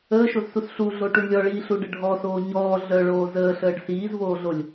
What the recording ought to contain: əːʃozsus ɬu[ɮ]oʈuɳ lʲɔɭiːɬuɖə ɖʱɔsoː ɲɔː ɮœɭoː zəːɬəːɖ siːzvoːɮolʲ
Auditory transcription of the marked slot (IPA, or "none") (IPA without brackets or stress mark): ɮ